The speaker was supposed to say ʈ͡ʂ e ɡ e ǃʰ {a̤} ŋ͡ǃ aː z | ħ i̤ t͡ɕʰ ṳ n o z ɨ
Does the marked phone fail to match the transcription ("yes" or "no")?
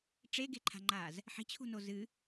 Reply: no